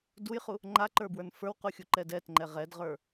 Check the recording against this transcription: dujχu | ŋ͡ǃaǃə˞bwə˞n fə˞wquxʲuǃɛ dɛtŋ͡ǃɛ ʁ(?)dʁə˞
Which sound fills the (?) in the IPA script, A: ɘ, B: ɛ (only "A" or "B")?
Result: B